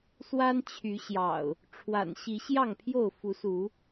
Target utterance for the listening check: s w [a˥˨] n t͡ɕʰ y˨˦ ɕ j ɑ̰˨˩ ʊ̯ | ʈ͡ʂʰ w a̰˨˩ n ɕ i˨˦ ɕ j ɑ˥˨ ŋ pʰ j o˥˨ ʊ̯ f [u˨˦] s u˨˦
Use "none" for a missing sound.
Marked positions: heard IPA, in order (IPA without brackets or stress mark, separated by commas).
a˦, u˨˦